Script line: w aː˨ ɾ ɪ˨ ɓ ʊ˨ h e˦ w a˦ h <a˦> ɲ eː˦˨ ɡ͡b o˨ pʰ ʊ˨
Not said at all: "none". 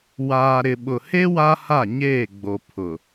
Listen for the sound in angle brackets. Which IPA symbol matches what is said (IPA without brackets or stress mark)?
a˦˨